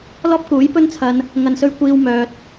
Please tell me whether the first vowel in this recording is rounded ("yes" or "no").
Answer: yes